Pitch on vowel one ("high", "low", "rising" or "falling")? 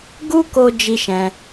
high